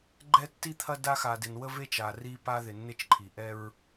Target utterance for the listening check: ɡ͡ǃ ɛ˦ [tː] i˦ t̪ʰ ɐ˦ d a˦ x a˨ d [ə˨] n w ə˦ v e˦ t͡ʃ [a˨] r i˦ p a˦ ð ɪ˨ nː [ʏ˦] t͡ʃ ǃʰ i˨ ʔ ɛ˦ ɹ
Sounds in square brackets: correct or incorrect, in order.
correct, incorrect, correct, incorrect

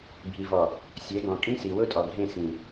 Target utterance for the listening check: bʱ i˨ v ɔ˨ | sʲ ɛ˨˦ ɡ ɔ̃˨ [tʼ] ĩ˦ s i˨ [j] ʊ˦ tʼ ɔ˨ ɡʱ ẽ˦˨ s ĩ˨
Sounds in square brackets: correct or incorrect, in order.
incorrect, incorrect

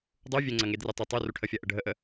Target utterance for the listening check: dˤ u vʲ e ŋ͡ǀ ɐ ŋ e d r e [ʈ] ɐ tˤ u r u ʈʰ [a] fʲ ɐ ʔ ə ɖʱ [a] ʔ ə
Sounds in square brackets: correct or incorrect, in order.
incorrect, incorrect, incorrect

